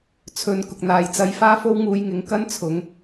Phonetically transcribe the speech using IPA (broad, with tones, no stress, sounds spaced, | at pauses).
t͡sʰ ɵ˨˧ n k ʊ˨ k̚ n̪ aː˨ j t͡s ɐ˧ j f aː˥ f o˥ w ŋ uː˧ j ŋ ɪ˨˥ ŋ k ɐ˥ n t͡sʰ ʊ˨˥ ŋ